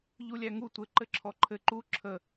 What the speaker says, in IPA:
ʎulʲæŋu tʷɘ ǃɘǁʰɔǃʰɘ ǃu ǁʰə

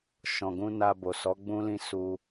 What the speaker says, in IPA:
ʃɔ̃˨ɡũ˧ na˧bo˨ sɔ˨˦ɡ͡bũ˦lĩ˦ su˧

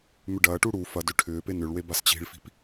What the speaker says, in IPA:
mʏɖɐːʈu ɽu fɐdʏ ʈʰʏːpe nʏɭwe bast͡ɕi̤ɭfi̤p

